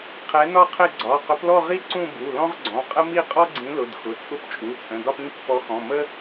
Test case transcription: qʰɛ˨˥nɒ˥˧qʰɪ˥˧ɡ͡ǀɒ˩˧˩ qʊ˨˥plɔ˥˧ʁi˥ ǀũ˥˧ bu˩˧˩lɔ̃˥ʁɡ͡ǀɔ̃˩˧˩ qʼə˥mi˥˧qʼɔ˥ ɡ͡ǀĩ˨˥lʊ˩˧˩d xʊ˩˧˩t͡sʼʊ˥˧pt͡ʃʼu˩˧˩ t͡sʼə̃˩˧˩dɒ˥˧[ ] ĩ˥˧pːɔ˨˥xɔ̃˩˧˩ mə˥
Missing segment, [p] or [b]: p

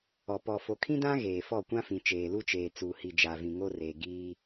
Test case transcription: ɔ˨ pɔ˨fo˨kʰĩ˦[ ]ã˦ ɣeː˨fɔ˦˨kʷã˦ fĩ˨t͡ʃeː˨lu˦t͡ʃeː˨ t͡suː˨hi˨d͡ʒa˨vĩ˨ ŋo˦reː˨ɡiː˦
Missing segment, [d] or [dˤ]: d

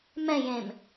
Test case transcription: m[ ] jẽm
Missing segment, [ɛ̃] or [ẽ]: ɛ̃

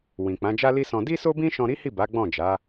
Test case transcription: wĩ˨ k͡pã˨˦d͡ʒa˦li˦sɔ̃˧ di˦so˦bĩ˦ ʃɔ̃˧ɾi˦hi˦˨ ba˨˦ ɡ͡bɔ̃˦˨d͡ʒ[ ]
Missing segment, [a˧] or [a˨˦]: a˨˦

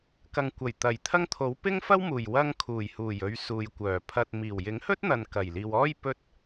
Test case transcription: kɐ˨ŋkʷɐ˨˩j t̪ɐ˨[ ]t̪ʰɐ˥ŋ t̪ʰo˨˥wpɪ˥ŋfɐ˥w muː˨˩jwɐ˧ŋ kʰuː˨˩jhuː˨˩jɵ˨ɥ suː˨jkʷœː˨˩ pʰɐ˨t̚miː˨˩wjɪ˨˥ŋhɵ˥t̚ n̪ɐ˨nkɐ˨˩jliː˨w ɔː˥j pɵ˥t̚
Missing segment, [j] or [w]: j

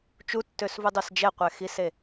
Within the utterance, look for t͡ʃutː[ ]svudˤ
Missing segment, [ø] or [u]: ø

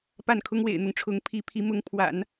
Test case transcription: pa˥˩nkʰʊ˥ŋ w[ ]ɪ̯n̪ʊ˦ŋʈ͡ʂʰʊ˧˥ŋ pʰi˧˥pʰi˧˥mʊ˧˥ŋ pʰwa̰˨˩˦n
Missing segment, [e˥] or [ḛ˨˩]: ḛ˨˩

